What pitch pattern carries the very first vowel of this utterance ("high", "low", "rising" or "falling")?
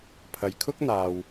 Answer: low